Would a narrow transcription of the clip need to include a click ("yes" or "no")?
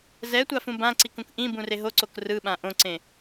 yes